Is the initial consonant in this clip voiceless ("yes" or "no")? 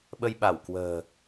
no